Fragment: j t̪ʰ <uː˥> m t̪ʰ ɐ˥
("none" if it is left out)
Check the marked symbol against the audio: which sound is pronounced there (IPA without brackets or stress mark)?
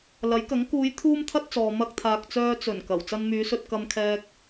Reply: uː˥